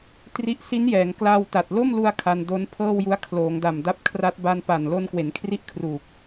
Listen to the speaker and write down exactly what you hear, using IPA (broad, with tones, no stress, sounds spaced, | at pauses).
t r i˦˥ ʔ s i˦˥ n j ɛː˩˦ ŋ k l aː˧ w t a˨˩ t̚ l o˥˩ m l u˧ a̯ kʰ a˧ n d o˦˥ n pʰ ɤː˥˩ w j u˦˥ a̯ kʰ l oː˩˦ ŋ d a˨˩ m d a˦˥ p̚ kʰ r a˦˥ t̚ b a˧ n p a˨˩ n l o˧ n k w e˩˦ n kʰ r i˥˩ ʔ kʰ r uː˨˩ k̚